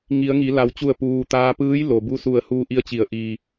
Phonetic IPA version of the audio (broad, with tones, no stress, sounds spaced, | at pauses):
ŋ i˩˧ ə̯ ŋ i˩˧ l a˩ w t͡ɕ u˧˩ ə̯ p uː˩ t̪ aː˧ p ɯː˧˥ j l o˩ b u˧ s u˧˩ ə̯ h uː˧ ʔ i˧ ə̯ t͡ɕ i˩˧ ə̯ ʔ iː˩